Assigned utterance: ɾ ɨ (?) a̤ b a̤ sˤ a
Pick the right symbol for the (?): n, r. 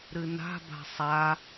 n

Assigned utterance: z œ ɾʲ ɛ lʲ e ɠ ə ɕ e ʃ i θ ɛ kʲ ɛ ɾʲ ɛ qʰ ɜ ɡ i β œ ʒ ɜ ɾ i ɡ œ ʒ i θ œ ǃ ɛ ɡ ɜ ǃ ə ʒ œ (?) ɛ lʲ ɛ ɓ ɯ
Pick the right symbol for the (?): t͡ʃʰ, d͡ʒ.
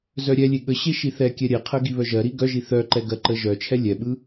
t͡ʃʰ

